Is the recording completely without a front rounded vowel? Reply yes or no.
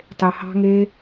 yes